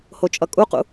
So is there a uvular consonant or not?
yes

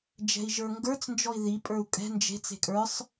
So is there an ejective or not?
yes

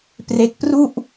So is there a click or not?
no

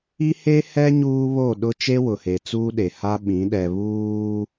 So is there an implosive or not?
yes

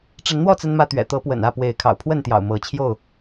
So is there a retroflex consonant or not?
yes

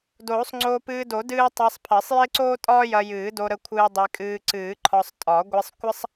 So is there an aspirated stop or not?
yes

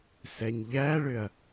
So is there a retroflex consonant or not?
yes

